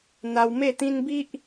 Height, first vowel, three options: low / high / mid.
low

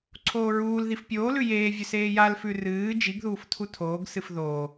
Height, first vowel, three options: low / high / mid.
mid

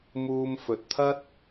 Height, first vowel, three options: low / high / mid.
high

